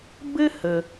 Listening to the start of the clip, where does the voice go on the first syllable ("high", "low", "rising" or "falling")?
high